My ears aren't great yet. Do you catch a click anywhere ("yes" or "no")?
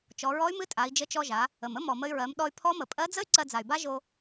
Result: yes